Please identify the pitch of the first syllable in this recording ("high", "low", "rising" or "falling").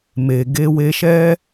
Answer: low